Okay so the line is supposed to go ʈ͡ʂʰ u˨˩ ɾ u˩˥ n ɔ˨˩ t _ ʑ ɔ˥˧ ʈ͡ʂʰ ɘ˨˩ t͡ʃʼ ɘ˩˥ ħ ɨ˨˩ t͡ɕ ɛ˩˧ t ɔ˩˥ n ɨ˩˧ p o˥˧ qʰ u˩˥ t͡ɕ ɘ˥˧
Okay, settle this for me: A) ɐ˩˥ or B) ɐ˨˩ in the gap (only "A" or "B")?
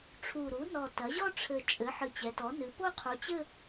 A